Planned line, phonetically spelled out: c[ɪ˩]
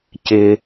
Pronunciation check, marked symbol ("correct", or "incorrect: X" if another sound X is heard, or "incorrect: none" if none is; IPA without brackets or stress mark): incorrect: ɪ˧